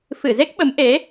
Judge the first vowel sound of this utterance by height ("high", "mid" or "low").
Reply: high